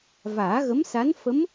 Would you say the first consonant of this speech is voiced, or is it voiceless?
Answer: voiced